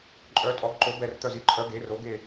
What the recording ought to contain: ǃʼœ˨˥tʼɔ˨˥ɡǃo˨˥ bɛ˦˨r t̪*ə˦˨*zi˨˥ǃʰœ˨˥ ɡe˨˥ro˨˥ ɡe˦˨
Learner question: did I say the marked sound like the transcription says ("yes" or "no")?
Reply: no